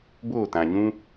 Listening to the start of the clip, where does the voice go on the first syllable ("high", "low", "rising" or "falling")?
falling